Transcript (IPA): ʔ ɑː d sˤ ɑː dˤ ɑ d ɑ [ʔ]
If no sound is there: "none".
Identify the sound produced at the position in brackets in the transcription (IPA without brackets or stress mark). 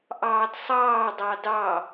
none